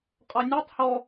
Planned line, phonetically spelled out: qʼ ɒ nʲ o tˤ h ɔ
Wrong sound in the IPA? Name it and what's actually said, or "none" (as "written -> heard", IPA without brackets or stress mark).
none